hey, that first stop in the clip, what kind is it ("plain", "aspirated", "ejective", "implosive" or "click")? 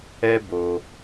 plain